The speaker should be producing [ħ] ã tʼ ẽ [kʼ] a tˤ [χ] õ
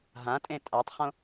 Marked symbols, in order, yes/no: no, no, yes

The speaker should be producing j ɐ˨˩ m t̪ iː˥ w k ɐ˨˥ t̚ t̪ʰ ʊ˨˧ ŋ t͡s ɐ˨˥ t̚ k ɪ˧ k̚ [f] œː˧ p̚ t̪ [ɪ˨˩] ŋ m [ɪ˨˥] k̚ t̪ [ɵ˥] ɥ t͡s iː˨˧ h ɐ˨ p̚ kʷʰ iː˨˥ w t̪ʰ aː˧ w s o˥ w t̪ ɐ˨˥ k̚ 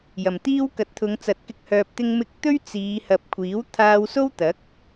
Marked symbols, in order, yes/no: no, no, no, yes

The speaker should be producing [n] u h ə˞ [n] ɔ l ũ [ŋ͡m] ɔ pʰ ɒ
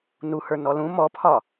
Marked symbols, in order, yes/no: yes, yes, no

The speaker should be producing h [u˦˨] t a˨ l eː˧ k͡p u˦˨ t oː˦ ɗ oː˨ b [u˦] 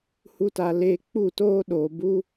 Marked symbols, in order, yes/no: no, yes

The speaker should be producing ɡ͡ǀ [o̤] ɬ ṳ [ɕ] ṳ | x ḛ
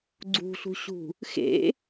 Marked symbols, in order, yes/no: no, yes

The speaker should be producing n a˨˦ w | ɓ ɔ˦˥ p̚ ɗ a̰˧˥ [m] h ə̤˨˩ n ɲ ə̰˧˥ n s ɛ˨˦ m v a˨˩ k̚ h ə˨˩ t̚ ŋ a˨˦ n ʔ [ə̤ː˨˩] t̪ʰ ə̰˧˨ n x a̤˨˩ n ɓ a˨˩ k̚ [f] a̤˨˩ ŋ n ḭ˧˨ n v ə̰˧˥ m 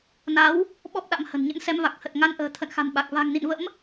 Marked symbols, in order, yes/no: yes, yes, no

